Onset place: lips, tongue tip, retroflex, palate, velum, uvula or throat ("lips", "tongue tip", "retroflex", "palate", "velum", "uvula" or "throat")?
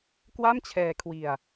velum